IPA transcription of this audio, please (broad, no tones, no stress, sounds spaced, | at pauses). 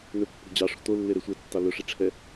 n ɵ pː o̤ d͡ʑ ɑ ʂ o̤ t̪ o lː e ɾ e sʷ ɛ tː ɑ l ɵ ʂ i ʈ͡ʂʰ ɛ